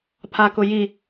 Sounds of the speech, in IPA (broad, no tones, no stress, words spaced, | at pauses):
pʰakʊji